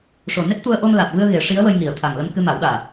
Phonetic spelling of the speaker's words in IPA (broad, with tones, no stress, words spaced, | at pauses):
ʂo˨˩ne˦˥t̚t̪u˧ə̯ ʔo˧mlaː˨˩t̚vɨ˧ə̯ ɣe˨˩˦ʂi˧˥ə̯wə˧jŋi˨˩ə̯ t̪ʰa˨˩ŋlə˧m kɨ˧ma˨˩˦wɗaː˨˩